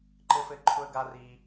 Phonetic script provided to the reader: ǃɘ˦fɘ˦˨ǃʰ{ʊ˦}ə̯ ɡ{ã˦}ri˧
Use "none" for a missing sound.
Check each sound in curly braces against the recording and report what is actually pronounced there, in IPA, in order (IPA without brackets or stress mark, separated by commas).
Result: ʊ˦, a˦